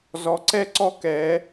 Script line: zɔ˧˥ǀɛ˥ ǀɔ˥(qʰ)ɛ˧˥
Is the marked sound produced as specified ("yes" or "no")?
no